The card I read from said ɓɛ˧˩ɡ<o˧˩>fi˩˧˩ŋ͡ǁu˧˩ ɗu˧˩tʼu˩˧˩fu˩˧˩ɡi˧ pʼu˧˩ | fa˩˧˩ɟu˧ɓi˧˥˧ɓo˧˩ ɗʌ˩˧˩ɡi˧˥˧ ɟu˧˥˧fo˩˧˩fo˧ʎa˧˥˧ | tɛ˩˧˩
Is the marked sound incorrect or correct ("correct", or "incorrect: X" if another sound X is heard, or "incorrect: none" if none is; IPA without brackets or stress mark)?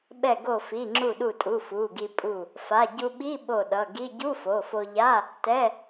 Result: correct